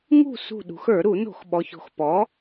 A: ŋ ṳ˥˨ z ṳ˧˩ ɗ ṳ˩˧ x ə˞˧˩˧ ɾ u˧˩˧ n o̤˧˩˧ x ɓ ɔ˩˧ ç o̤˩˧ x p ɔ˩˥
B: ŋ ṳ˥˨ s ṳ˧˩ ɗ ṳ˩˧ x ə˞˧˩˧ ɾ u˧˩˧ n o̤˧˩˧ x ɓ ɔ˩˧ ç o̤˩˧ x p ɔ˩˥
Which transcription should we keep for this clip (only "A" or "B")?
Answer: B